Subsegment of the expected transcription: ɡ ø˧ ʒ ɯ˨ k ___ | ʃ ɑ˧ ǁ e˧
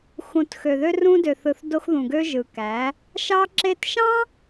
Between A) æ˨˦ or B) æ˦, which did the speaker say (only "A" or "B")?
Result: A